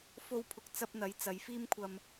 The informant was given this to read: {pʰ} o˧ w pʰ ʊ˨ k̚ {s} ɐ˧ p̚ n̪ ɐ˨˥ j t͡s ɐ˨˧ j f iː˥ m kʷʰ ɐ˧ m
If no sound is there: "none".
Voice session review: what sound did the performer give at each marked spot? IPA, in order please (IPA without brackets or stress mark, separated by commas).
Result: f, t͡s